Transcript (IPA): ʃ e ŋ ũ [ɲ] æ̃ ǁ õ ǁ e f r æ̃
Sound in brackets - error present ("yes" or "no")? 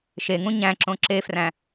no